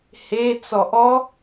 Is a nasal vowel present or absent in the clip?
absent